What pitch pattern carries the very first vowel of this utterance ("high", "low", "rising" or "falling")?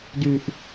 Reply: low